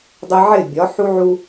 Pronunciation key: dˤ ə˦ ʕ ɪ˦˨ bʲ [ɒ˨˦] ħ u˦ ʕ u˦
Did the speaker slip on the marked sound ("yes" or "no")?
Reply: no